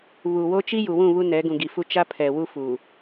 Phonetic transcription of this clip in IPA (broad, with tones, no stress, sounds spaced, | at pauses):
β u˨ w o˦ t͡ʃ i˦ j u˨ w ũ˦˨ β u˦ n ɛ˨˦ ɡ ũ˨ ɡ i˨ f u˦ t͡ʃ a˦ pʰ ɛ˨ w u˦ f uː˨